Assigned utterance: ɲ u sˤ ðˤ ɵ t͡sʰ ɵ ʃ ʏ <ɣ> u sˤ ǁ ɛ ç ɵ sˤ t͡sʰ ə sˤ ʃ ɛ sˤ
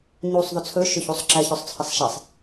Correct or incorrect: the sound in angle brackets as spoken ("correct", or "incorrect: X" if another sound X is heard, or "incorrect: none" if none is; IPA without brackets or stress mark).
incorrect: ç